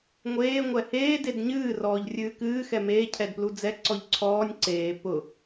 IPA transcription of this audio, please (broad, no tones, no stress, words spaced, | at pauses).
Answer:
ŋʷeː ŋʷɛheː dedɲɨː rɔːʎrʲɨːkɨː xɛmeː cʰɛdplud͡zɛ ǀɔʎǀʰɔːnʲ ǀeː pʊ